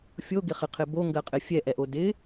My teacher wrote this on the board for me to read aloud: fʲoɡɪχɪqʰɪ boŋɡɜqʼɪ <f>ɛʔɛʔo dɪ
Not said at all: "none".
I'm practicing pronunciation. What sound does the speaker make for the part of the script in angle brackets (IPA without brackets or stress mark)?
fʲ